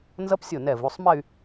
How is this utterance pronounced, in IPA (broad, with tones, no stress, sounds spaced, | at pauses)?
n z ʌ˦˥ p sʲ o˧˩ n ɛ˧˩ v u˩˧˩ sˤ m ɛ˥˧ y̯